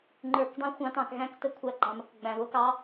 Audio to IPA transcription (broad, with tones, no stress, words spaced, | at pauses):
ŋ͡ǃə˞˧˩˧kdˤĩ˦˥xʷɑ̃˦˥tɑ̃˧˩˧k ɣæ̃˦˥k tə˧˩˧ kʷʰæ˦˥ɡ͡ǃɑ̃˧mə˧˩˧kɡ͡bæ̃˧ βʊ˦˥kɑ˦˥